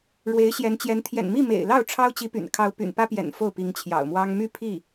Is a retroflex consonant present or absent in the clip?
present